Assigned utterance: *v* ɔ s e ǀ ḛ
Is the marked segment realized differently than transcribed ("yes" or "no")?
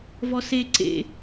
no